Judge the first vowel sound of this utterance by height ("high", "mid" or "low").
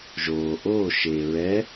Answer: mid